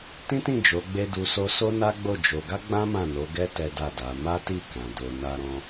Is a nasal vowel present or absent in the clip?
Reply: present